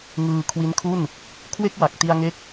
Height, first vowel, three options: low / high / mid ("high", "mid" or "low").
high